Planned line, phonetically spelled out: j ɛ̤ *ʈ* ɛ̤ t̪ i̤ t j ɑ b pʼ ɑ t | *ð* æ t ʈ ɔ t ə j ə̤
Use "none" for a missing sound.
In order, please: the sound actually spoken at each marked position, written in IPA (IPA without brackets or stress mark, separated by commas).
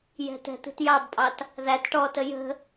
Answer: t, ð